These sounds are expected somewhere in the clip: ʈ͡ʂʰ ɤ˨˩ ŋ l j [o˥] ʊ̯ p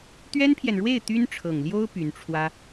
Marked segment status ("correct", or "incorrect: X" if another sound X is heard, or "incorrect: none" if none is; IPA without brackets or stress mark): correct